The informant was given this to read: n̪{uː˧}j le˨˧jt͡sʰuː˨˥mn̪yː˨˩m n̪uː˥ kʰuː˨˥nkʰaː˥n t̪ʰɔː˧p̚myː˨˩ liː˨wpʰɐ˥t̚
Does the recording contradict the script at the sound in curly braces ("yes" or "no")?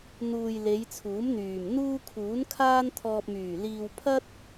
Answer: yes